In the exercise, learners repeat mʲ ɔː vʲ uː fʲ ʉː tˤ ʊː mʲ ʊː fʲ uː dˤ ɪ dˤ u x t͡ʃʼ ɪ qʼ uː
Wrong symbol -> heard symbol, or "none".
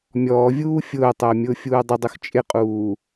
ʉː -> ʊː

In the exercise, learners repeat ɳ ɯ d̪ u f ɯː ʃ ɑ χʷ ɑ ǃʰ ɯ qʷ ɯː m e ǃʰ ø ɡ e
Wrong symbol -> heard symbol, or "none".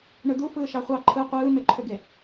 none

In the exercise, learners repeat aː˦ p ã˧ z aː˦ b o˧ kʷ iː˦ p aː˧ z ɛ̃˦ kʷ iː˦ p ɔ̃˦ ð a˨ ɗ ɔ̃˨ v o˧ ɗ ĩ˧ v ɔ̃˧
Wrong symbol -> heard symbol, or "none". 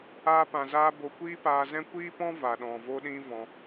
ð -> v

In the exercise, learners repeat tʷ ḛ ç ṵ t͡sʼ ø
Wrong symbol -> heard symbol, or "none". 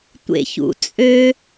none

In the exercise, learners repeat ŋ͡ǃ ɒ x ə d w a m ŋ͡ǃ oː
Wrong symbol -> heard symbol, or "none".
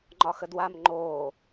none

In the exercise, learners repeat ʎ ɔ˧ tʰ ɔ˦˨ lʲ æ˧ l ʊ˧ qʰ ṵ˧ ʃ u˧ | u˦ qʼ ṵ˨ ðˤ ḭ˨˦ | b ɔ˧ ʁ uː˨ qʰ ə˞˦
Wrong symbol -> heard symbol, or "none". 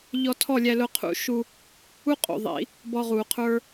none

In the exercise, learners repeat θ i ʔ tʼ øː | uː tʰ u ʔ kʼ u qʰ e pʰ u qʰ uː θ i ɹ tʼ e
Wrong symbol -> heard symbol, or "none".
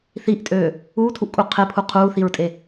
none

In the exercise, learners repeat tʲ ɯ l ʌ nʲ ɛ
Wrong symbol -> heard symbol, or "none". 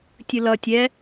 nʲ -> tʲ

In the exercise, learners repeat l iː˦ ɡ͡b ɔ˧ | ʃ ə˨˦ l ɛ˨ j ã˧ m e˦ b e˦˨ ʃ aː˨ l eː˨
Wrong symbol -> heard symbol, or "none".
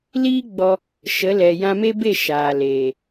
none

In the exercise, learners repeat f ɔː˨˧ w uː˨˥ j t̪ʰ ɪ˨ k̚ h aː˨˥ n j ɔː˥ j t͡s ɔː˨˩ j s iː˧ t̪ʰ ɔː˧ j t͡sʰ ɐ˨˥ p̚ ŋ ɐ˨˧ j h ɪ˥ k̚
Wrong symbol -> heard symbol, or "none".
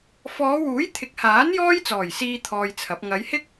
none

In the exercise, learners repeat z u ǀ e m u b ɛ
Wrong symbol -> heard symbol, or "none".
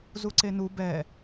m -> n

